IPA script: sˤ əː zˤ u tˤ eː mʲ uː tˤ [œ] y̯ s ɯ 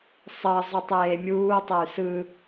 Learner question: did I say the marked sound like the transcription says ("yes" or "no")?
no